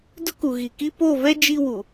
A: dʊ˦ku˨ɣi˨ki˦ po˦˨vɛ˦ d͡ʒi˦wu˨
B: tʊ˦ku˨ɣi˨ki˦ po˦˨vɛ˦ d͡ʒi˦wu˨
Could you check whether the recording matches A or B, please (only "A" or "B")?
A